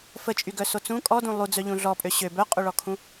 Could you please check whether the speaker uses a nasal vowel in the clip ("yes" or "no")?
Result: yes